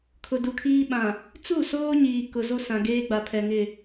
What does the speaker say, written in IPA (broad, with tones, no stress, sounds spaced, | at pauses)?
kʰ ʊ˨ d u˨ kʰ iː˦ ɓ ã˨ | t͡s u˦˨ s oː˦ ɲ iː˨ k ʊ˨ z o˦ s ã˨ ɡ eː˦ ɡ͡b a˨ pʰ ɛ˨ ŋ ɪ˨